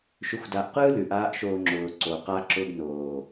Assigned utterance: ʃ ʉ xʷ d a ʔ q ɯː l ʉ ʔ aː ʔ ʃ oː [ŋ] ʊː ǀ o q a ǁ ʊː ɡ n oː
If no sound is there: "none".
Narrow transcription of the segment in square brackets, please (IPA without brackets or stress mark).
ŋ͡ǁ